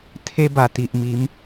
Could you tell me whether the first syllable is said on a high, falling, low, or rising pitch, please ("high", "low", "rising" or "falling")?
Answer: high